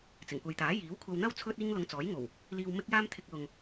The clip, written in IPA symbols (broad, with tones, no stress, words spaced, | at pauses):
t͡sɪ˨˩ŋkʷɐ˨jt̪aː˨˥ jiː˨˥wkʷʰɐ˧wn̪ɐ˥w t͡sʰɵ˧t̚iː˧ŋ lʊ˧ŋt͡sɔː˨˥jŋo˨˩w | liː˨wmɪ˧k̚jaː˧m t̪ʰɪ˧k̚lʊ˨ŋ